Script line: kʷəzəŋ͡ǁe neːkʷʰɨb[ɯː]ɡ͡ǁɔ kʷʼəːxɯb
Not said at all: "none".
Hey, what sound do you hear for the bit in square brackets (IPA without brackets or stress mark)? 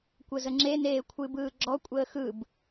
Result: ɯː